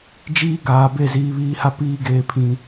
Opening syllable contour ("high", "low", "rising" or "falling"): high